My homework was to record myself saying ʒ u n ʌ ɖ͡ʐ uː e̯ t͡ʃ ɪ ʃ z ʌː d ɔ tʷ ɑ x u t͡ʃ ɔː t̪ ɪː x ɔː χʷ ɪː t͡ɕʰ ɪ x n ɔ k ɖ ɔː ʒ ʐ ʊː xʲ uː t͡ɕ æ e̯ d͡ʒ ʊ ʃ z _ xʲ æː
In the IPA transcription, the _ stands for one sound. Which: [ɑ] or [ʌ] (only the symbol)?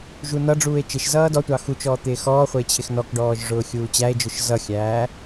ʌ